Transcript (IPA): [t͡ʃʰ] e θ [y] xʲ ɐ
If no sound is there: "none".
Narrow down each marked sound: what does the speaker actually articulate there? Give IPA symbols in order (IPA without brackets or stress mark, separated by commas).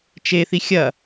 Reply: t͡ʃ, i